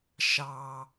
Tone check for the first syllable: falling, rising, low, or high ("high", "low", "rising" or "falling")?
low